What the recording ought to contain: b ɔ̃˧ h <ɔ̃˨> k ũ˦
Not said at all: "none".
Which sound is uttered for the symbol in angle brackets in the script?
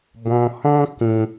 ɔ̃˦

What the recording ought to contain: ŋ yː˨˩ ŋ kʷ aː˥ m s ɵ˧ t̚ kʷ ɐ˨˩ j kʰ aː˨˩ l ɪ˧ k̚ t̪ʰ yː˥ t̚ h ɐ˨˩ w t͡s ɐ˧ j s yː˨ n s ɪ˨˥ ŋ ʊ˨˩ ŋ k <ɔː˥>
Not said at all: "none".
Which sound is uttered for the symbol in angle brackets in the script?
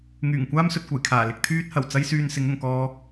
ɔː˧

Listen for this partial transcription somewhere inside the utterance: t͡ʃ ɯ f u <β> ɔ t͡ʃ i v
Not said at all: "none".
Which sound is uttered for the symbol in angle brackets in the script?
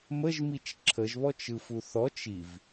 θ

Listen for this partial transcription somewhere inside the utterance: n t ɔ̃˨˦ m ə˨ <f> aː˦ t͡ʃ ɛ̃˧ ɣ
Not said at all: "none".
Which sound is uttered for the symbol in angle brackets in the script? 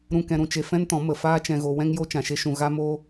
f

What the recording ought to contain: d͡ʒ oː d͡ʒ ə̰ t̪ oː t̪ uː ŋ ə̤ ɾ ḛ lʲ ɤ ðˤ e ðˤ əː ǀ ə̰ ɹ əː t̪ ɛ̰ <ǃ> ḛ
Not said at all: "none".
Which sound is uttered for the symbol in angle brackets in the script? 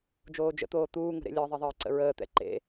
ǃ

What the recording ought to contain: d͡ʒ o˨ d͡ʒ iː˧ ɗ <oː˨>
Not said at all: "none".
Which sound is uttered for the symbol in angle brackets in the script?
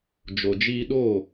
oː˦˨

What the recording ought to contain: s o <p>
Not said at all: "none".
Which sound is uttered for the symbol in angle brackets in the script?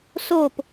p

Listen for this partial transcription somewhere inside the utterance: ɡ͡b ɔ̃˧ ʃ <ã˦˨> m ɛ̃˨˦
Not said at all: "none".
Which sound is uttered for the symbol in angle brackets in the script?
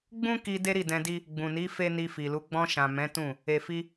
ã˨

